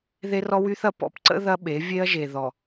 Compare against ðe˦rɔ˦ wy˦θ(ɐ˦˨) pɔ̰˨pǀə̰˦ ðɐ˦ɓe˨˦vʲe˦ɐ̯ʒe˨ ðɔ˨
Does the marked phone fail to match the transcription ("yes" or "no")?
yes